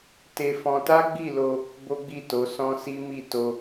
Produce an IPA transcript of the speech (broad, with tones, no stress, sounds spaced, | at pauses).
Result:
t e˧ f ɔ̃˧ t a˦ ɡ͡b i˦˨ l o˧ | b o˦ ɡ͡b i˦˨ t o˨˦ s ɔ̃˦ s i˦ m i˦˨ t o˧